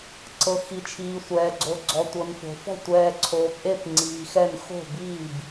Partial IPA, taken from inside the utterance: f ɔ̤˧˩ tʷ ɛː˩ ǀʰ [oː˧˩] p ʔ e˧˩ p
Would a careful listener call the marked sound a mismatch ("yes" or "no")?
yes